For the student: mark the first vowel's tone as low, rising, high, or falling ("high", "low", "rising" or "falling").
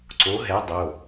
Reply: rising